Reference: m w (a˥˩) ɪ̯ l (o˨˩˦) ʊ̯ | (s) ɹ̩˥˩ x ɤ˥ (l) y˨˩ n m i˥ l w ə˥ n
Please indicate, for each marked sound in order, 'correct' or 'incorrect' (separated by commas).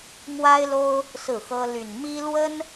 incorrect, incorrect, correct, correct